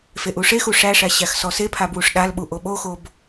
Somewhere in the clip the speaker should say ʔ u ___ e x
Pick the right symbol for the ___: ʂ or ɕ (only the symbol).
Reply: ʂ